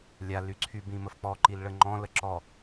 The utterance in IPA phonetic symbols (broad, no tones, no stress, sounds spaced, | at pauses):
lʲ a l y ǀʰ y b ĩ m ə f k͡p ɔ ǃ i l ɭ ə ŋ͡ǃ ɔ̃ l ə ǁ ɔ